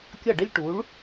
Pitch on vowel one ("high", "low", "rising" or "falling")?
falling